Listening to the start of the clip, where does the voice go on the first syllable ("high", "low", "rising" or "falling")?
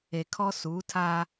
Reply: low